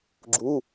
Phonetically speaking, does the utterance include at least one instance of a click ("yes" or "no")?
yes